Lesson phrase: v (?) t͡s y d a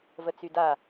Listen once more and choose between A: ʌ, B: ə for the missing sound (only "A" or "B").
B